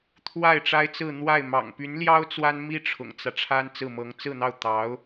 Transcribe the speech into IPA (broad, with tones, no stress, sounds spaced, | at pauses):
t̪ʰ w a˥˩ ɪ̯ ʈ͡ʂ a˥ ɪ̯ t͡s ɹ̩˥˧ n̪ w a˥˩ ɪ̯ m ɑ̰˨˩ ŋ p y˧˥ n l j ɑ˥ ʊ̯ t͡s w a˥ n m i˥ ʈ͡ʂʰ ʊ̰˨˩ ŋ t͡s ä˦ ʈ͡ʂʰ a˥ n t͡s ɹ̩˥˩ m ɤ˧˥ ŋ t͡s ɹ̩˥˧ n̪ ɑ˥˩ ʊ̯ t̪ ɑ˧˥ ʊ̯